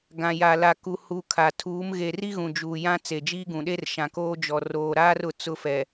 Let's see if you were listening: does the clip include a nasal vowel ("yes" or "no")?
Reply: yes